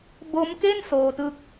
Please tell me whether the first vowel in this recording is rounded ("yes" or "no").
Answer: yes